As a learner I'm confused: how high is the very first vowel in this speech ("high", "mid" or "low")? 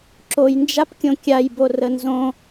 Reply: mid